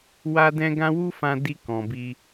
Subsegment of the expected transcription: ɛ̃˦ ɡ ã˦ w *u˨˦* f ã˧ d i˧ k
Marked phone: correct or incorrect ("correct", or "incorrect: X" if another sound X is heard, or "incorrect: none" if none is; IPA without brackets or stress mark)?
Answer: incorrect: u˦